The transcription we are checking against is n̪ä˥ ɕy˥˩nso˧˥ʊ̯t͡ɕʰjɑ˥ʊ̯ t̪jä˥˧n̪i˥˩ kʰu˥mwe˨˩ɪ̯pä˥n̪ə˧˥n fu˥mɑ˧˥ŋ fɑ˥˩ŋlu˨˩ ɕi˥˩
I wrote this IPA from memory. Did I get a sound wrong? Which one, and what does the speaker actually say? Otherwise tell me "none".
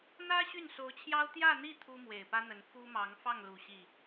kʰ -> t̪ʰ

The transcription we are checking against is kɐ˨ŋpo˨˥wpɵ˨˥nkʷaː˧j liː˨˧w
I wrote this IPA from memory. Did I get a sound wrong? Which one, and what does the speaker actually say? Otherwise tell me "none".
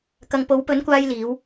none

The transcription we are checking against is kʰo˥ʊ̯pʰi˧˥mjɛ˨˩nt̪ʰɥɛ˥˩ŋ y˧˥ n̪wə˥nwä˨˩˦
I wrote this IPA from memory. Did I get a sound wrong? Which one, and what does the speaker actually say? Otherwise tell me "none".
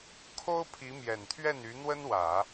ŋ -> n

